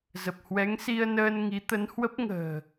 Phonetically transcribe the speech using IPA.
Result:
z ə˨˩ p̚ h w ɛ˨˦ ŋ s i˧ ə̯ n əː˧ n ŋ i˨˦ t̪ ə˨˦ n h w ə˦˥ p̚ ŋ ə̤ː˨˩

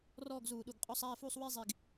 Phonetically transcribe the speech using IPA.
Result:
r ɔː˥˧ ɡ z uː˧˩˧ ɗ u˨˩ ɡ qʼ ɔ˥˧ sˤ æː˥˧ f uː˥˧ sˤ w i˥˧ zˤ i˨˩ ɡ

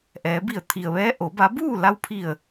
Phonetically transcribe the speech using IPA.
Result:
ʔ ɛː˩˧ b i˧˩ ə̯ t̪ʰ i˩ ə̯ ʋ ɛː˧˥ ʔ o˩˧ b a˧˥ b uː˥˨ l a˧˥ w pʰ i˧˩ ə̯

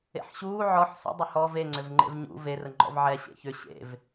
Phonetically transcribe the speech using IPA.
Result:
ḛ ħ ɕ uː ʕ ɔ ħ s ə̰ dˤ ʏ h ɔ v e ŋ͡ǀ ʏ v ŋ͡ǃ ḛ v ɲ ṵ v e r ə ŋ͡ǃ ɔ̰ v ʕ ɛ ɕ ḛ ç ʏ ɕ ḛ v

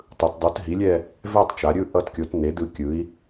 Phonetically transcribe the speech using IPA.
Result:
tˤ ɯ˩˧ t dˤ u˩˥ t ɦ i˩˥ lʲ ɛ˥˧ | v ɛ˥˧ tˤ t͡ʃ a˩˧ ɾʲ ɯ˥˧ ʔ ʌ˥˧ t kʲ o˩˥ t n e˩˥ d ɯ˩˥ kʲ ɯ˩˥ i̯

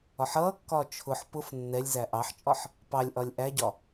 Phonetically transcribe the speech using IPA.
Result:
ɒ ħ ʌː kː ɒː t͡ʃʰ ʊ ħ p ʊ f nː ɛ lʲ z æ ʔ ɑ ħ t͡ʃʼ ɒ ħ | p ɑ lʲ ʔ ɒ lʲ ʔ æ ɟ ɒ

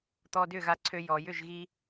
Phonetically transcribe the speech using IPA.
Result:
t̪ ɔː˧ d ʏː˥˩ ɣ a˧ ǀʰ ø˧ j ɔ˩ j ʏ˥˩ ʒ ɣ i˥

